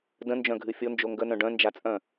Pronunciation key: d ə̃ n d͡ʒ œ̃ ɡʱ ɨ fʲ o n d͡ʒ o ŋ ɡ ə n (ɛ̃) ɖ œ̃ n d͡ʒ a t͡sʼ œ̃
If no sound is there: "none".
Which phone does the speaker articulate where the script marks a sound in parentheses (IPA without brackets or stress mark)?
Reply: œ̃